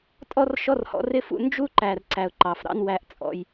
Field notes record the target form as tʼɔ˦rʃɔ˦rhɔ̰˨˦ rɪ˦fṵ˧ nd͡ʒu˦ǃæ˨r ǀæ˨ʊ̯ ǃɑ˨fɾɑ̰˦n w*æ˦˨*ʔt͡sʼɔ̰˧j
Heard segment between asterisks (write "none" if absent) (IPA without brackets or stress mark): æ˦˨